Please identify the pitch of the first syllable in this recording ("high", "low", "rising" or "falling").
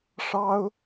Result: high